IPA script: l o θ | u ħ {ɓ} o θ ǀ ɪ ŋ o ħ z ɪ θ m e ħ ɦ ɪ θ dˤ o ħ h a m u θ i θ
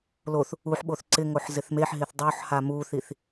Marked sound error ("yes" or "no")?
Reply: no